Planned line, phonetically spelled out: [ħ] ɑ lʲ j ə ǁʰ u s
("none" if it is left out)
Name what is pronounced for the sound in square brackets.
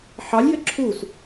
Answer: ħ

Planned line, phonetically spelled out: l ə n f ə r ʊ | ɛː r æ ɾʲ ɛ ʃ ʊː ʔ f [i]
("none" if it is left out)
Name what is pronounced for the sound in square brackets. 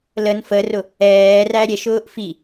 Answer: i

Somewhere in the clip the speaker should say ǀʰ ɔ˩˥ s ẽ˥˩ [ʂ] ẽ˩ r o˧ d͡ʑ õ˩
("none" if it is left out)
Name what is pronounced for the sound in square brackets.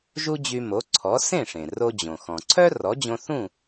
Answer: ʂ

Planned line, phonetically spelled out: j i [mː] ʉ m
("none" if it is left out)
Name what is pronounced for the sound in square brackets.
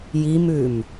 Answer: m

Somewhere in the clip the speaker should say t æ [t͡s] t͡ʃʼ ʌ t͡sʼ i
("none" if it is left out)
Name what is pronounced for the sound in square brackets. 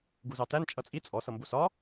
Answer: n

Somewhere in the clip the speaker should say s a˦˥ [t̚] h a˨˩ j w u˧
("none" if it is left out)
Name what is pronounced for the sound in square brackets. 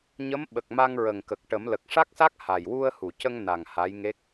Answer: k̚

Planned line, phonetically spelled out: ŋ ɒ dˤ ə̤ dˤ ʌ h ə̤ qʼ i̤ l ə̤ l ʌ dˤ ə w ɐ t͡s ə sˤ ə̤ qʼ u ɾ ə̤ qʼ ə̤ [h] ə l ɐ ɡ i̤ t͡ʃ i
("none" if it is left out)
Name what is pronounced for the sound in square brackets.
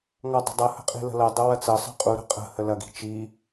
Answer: h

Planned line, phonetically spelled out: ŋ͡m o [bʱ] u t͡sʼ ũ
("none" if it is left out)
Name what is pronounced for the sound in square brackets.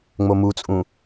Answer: m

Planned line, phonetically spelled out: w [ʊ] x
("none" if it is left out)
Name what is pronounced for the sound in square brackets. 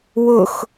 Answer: ʊ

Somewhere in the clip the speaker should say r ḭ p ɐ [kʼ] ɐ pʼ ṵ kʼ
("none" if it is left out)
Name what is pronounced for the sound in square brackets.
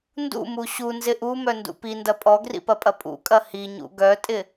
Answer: pʼ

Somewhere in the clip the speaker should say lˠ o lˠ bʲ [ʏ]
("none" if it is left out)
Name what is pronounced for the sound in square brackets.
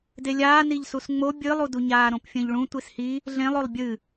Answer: ɨ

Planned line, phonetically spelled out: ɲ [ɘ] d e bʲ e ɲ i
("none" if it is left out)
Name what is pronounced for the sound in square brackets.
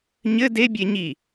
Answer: ɘ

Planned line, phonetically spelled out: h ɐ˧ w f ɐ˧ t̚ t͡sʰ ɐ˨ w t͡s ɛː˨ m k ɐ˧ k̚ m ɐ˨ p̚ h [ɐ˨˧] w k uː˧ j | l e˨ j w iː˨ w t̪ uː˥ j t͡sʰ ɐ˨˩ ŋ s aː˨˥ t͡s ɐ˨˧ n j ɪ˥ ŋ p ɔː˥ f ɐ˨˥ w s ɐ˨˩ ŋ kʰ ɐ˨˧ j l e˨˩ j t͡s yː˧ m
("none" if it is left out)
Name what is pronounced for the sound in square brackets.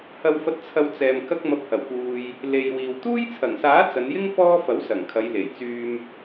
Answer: ɐ˨˩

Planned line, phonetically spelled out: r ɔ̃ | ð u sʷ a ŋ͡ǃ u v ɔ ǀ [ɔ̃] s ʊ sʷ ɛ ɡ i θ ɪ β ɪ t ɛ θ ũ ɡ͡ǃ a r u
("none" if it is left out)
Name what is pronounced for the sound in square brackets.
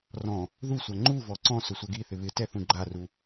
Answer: ɔ̃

